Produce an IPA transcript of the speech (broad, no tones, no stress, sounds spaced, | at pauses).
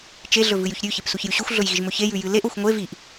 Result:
t͡ʃ e ɮ ɵ v ɨ j ʉ ç ɾʲ ʉ ç e p s u ç j ʉ ɕ ʉ xʷ ɮ ɵ j ɣ i ʒ m ɵ ç e j ʉ j ɨ l e ʔ o xʷ ŋʷ e v i ʔ